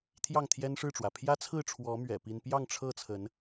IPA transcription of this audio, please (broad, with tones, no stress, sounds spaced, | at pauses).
t̪ʰ j ɑ˥˨ ŋ t̪ʰ j ɛ˦ n ʂ ɻ̩˥˨ ʈ͡ʂ w ä˩ pʰ j ä˦ t͡sʰ ɹ̩˥˨ ʈ͡ʂʰ w ɔ˨˦ m ɥ ɛ̰˨˩ p i˦ n p j ɑ˥˨ ŋ ʈ͡ʂʰ ɤ˥˨ t͡sʰ ə˨˦ n